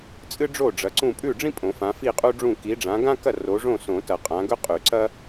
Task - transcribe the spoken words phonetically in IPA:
t͡sʼɨ˥ɖ͡ʐo˥˨ ɖ͡ʐɐ˨˦ǀũ˥˨ pʼʉ˥˨ɖ͡ʐĩ˥pʼõ˨˩˦ fã˨˦fi˥˨qʼu˥ɖ͡ʐũ˥˨ ki˨˦ɖ͡ʐã˨˦ɡã˥kɐ˥˨ ro˨˦ʐõ˥˨sõ˨˩˦tɐ˨˩˦ qʼã˨˦ɡɵ˥qʼʉ˨˩˦ ǀɐ˥

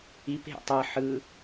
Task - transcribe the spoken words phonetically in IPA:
ip ɦḛtˤɤ ħɯ

